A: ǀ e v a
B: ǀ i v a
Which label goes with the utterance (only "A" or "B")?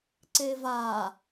A